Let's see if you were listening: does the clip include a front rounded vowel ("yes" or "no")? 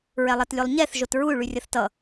yes